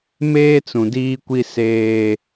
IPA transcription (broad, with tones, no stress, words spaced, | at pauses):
meː˦t͡sũ˨diː˦kʷi˦ seː˦